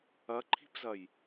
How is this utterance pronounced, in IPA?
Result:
ɐǃʰi̤pzɐj

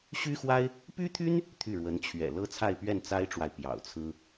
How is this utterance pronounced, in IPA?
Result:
ɕy˥xwa˥ɪ̯ | py˥t̪ʰy˥n | t̪ʰy˥˩ɻwə˧˥nt͡ɕʰɥɛ̰˨˩ lɤ˥t͡sʰa˥˧ɪ̯pɥɛ˥˩n t͡sa˥ɪ̯ʈ͡ʂwa˨ɪ̯ pjɑ̰˨˩ʊ̯t͡sʰɹ̩˥

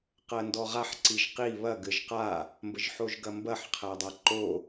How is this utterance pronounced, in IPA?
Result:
qɜndɔʁaħ ǀiʒqi βɐ ɡɘʒqa | mbəʒħoʒɡɐmbɐħ qʰædˤaǃo

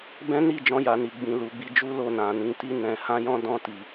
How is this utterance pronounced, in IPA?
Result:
bɛ̃˦ni˦˨d͡ʒɔ̃˧ja˨ ni˨ ɡ͡bĩ˨ lu˨˦ ɡ͡bi˧d͡ʒu˦lo˦˨ nã˨nĩ˨˦ti˦ nɛ̃˧ hã˦jɔ̃˦ dɔ̃˧ti˨

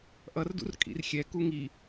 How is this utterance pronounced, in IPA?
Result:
ʔʌrdṵr kʼḭrxʲɛku ŋi

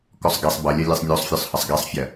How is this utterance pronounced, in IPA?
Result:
kɔsˤɡɛsˤ bʌlʲɐ lʲɛsˤnʲosˤfʲɔsˤhɐsˤ ɡɛsˤfʲɐ

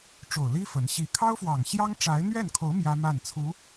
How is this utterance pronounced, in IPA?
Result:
ʈ͡ʂo˨˩ʊ̯li˥ fə˧˥n ɕi˧˥ kʰɑ˥ʊ̯fwɑ˨˩ŋɕjɑ˥ŋʈ͡ʂa˧˥ɪ̯ n̪ɥɛ˥˩nkʰo˧˥ʊ̯ mjä˥ma˥˩nt͡sʰu˧˥

